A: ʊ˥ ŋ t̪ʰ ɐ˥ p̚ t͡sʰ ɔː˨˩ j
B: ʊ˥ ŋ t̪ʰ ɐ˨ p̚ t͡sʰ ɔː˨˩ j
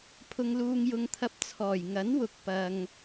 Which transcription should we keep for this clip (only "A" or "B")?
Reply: A